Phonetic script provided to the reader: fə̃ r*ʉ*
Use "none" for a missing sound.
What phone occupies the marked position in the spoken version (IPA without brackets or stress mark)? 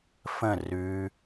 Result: ʉ